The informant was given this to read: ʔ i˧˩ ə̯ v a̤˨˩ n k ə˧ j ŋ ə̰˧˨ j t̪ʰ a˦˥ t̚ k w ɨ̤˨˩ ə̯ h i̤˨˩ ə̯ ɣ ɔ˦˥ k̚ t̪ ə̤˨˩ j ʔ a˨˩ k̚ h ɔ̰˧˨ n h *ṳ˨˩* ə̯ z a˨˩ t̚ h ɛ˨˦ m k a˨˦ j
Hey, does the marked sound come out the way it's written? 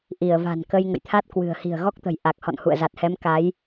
no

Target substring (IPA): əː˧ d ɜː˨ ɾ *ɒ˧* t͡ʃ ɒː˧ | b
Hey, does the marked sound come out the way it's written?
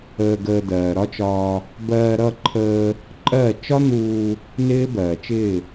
no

